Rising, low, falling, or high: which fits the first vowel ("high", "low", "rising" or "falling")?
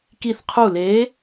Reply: falling